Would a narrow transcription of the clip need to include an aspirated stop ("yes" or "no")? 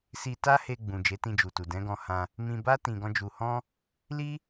no